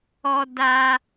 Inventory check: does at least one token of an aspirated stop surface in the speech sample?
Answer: no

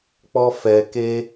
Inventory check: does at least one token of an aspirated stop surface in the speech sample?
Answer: no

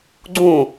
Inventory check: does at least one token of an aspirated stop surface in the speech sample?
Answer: no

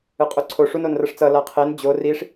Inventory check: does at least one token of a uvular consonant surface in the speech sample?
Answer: yes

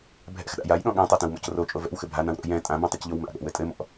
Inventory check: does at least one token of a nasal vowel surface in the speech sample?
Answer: yes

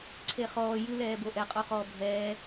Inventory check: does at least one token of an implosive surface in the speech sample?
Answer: no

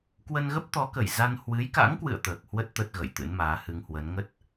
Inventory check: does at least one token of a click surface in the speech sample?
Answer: no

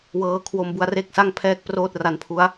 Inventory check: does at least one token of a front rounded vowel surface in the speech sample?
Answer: no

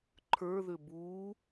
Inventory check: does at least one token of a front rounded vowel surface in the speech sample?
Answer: yes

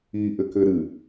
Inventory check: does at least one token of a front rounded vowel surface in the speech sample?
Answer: no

